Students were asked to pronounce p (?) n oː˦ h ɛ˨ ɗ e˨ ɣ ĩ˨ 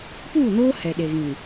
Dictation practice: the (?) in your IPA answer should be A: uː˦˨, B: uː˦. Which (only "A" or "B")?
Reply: A